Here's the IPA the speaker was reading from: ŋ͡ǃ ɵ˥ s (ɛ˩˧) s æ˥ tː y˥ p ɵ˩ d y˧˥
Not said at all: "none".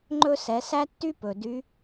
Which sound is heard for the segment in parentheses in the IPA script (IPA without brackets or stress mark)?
ɛ˩˧